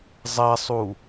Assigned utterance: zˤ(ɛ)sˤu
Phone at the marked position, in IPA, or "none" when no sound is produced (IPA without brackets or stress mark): ɛ